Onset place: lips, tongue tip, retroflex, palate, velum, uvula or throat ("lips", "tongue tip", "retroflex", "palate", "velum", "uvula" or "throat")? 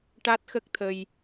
retroflex